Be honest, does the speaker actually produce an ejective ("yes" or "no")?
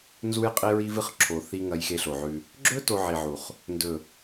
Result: yes